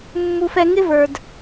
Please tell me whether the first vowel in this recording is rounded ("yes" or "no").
yes